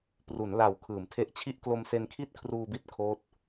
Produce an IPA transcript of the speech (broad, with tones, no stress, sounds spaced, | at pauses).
p r u˩˦ n l a˨˩ w kʰ ɯː˩˦ m tʰ e˦˥ ʔ t͡ɕʰ i˥˩ ʔ k l o˧ m s e˧ n kʰ i˥˩ t̚ kʰ r uː˧ b i˦˥ t̚ kʰ oː˦˥ t̚